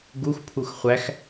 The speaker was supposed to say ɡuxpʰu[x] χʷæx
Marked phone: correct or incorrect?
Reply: correct